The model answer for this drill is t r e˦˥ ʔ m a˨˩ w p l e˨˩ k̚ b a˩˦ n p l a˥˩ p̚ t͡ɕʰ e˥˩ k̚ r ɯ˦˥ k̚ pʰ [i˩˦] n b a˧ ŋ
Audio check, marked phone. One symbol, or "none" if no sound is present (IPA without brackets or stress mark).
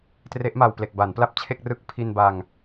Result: i˧